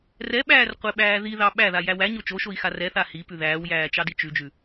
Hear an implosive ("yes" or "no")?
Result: yes